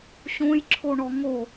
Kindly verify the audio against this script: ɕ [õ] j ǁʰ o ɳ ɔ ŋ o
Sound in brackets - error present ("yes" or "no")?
no